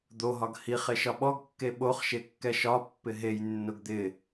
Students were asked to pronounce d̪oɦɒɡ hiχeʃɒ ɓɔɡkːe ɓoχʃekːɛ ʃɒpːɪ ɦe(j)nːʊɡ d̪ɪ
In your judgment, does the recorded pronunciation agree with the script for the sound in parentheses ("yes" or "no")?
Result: yes